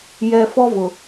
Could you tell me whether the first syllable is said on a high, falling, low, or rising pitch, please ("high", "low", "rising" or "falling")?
low